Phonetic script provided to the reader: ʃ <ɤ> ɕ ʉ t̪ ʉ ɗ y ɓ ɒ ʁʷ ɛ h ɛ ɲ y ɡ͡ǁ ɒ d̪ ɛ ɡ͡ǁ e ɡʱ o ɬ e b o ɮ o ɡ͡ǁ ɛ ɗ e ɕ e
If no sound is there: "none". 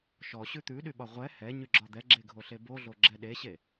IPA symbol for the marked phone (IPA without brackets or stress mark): ɔ